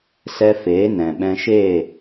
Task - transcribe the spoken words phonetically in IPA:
s ɛ˧ f eː˨˦ n ɛ̃˨ ɓ ɛ̃˧ ʃ eː˦˨

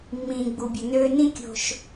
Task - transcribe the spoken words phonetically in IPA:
mː ĩː˨ ɡ͡b u˨ bʲ ə˨ n øː˧ n ĩ˦ kʲ o̤˧ ʃ

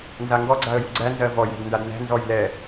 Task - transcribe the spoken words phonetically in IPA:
n z a ŋ ɡ ɔ ɡ͡ǀ a ə̯ j u ɡ͡ǀ æ n z ɜ v ɔ j æ̤ d n d a d n æ̤ n z ɔ j l ɛ

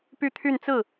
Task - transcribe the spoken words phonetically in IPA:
p y˥˧ t̪ʰ y˥˧ n t͡s ɹ̩˥˩

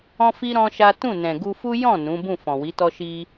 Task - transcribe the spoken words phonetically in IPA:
ɔ̃˦ f i˦ ɾ ɔ̃˦ ʃ a˦ t ũ˦˨ n ɛ̃˨ ɡ u˧ f u˦ j ɔ̃˦˨ n ũ˨˦ b ũ˦˨ f ɔ̃˨ w i˨˦ t ɔ˦ ʃ i˧

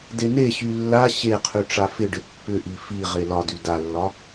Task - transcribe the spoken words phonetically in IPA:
d e n e ɕ y lː a ɕ e qʰ y ʈ͡ʂ a f ɪ ɖ ɪ pː ʏ ʔ i f i ʁ e l ɒ d y d a lː ɒ

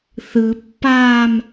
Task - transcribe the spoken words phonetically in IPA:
θ ɯ pː aː m

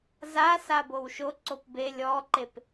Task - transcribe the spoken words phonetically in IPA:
z a s a b o w ʃ o ǀ o p b e lʲ ɔ ǃ e p

